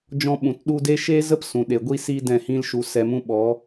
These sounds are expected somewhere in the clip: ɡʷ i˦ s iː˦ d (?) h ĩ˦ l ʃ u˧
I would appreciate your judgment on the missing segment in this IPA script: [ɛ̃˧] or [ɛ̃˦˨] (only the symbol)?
ɛ̃˦˨